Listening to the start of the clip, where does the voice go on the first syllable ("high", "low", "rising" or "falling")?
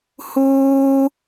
high